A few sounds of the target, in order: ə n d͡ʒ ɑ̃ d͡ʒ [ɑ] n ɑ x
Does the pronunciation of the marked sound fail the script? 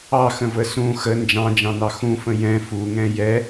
yes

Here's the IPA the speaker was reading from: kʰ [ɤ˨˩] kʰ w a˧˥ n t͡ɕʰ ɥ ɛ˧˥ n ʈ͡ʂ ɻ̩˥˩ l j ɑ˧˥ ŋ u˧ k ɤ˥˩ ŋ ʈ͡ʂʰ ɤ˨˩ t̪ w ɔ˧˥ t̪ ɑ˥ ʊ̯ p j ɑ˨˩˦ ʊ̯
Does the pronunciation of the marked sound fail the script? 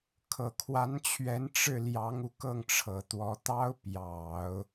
no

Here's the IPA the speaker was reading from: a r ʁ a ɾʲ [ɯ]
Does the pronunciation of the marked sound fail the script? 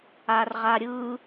no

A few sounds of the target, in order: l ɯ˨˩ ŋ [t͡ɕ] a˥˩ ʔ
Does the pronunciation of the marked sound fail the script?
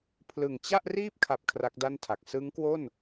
no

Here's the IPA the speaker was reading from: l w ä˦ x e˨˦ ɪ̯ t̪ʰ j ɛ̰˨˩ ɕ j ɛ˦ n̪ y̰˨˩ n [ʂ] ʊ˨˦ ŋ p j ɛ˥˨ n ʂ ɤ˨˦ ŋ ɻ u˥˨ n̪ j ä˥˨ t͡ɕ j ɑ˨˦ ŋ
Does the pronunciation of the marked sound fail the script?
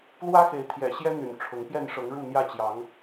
yes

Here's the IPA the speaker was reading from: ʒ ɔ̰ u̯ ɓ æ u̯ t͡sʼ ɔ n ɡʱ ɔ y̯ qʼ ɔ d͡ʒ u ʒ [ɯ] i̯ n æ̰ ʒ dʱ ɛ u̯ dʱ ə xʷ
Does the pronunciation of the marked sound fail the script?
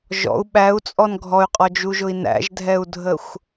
yes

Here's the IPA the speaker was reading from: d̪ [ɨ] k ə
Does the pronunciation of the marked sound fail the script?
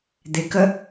yes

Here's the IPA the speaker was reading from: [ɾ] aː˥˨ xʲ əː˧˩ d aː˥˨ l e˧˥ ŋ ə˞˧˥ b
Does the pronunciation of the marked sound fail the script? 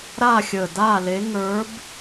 no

